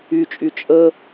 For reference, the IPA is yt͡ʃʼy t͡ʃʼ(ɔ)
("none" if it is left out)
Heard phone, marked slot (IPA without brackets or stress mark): ə